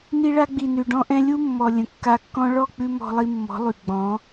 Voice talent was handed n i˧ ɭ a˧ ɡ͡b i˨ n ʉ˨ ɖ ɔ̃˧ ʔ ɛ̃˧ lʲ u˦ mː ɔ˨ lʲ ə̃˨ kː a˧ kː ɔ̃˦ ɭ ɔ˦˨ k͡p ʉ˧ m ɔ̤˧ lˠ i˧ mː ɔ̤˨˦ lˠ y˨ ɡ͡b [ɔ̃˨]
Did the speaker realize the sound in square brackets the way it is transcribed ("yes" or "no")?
no